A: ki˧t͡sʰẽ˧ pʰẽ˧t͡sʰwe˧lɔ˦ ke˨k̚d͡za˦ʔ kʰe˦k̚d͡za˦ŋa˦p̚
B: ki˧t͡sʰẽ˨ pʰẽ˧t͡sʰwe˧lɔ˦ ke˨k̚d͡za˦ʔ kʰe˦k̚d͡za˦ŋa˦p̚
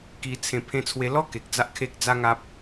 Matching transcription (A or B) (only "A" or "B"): A